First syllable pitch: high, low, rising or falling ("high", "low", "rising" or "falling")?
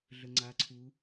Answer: low